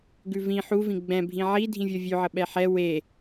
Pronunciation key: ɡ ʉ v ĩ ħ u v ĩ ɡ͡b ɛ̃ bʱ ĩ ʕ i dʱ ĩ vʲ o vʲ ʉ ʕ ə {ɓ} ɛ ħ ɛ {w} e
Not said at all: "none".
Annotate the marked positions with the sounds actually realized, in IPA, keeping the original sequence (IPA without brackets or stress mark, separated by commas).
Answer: ɓ, w